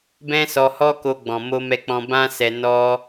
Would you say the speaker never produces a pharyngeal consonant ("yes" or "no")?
yes